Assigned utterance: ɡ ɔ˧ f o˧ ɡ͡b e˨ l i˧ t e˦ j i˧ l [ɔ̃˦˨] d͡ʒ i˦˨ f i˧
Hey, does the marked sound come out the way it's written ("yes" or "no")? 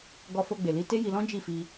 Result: no